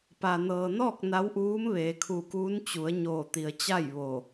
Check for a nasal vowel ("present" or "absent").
absent